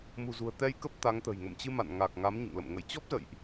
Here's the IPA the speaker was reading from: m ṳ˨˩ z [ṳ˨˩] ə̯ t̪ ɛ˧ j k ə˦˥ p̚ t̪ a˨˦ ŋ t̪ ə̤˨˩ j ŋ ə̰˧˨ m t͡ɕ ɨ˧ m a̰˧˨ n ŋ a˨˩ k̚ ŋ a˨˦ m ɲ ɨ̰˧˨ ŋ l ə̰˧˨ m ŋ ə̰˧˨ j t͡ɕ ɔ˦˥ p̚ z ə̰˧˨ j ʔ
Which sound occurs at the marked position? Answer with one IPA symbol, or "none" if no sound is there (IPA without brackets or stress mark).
ṳ˨˩